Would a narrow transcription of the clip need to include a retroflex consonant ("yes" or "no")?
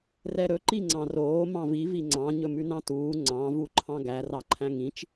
no